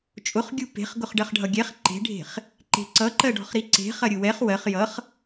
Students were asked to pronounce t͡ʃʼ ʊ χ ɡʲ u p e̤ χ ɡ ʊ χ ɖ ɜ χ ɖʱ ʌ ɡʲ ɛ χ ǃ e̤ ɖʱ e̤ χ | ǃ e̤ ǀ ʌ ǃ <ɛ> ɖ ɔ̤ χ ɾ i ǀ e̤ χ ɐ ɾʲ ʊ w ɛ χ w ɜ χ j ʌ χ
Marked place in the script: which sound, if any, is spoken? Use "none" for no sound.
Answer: ɜ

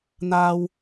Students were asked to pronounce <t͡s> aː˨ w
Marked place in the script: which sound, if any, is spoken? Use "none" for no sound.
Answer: n̪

